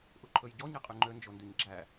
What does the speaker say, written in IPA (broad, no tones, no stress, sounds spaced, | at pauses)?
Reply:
ʔ u ǃʰ ɵ j ɟ ɔ ɲ e qʼ y ŋ͡ǃ ø n d͡ʒ o n d y ɲ ɡ͡ǁ æ